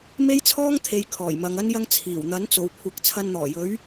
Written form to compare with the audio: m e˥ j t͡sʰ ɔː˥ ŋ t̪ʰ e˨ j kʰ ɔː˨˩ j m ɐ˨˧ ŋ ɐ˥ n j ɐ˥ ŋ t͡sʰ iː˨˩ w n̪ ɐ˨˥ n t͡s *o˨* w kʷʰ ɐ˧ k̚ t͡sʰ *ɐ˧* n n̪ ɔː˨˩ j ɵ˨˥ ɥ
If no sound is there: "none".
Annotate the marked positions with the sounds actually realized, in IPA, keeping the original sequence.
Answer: o˨, ɐ˧

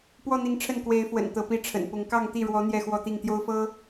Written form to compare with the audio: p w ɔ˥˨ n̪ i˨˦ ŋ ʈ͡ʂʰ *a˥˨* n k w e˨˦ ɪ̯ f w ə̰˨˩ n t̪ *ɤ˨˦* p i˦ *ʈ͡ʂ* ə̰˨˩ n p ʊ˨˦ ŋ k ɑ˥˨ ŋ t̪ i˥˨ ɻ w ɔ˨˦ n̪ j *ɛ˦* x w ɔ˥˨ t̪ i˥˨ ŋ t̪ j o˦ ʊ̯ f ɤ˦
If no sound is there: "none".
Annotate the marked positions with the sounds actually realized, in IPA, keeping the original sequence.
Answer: ə˥˨, ɤ˨˦, ʈ͡ʂʰ, ɛ˥˨

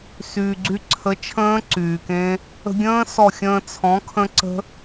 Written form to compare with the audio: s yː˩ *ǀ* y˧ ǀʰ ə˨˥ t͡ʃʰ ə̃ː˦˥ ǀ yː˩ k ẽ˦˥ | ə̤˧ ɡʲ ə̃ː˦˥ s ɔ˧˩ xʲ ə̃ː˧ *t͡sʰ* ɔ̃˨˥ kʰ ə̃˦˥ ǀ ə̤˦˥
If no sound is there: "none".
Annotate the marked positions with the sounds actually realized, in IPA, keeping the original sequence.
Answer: ɡ͡ǀ, t͡sʰ

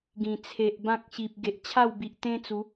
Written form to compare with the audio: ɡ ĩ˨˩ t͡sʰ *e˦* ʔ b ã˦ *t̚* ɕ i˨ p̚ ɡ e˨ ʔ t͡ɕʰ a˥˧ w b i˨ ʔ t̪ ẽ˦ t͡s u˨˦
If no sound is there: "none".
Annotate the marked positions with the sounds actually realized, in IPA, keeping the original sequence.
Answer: e˨, k̚

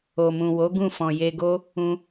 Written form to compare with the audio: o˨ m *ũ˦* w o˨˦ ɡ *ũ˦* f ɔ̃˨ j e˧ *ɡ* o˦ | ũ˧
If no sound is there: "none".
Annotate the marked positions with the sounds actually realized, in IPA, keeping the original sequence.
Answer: ũ˨, ũ˦˨, ɡ

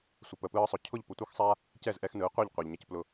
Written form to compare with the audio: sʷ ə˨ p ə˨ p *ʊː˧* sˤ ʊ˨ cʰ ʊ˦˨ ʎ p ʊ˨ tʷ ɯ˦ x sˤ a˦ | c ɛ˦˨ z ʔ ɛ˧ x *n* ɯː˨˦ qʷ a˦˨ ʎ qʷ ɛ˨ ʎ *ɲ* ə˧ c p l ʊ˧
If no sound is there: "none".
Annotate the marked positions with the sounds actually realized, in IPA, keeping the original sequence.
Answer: ɯː˧, n, ɲ

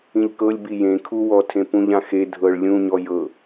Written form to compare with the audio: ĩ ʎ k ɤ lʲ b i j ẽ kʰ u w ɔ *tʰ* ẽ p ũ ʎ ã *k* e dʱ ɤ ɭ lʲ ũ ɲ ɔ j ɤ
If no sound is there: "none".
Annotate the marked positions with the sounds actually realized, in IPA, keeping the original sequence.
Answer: tʰ, x

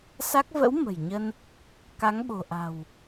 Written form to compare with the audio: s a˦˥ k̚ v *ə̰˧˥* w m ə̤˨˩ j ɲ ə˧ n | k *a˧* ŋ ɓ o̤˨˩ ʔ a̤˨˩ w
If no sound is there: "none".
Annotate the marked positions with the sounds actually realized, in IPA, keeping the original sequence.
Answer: ə̰˧˥, a˨˦

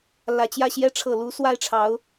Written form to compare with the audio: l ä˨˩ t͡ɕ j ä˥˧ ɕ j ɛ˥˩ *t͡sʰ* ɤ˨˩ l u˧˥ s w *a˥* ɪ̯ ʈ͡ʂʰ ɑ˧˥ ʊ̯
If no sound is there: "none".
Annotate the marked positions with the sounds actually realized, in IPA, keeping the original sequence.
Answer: ʈ͡ʂʰ, a˥

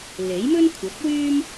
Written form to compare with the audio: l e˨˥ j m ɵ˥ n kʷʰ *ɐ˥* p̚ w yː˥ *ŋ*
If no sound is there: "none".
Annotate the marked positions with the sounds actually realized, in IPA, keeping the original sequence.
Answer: ɐ˨˥, m

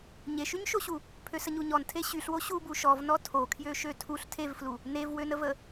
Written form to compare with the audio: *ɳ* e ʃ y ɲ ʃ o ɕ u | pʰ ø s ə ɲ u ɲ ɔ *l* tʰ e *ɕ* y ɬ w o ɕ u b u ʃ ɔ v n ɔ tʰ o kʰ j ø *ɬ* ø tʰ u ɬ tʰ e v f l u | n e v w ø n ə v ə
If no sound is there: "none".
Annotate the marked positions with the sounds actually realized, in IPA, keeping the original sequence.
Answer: ɲ, n, ɕ, ʃ

